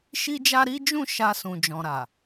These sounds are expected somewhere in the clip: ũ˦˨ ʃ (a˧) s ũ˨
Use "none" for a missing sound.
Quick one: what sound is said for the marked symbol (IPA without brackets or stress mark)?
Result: a˧